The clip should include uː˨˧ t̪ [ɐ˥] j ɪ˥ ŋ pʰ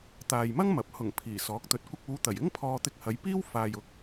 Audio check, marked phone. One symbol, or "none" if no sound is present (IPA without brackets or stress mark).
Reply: ɐ˨˩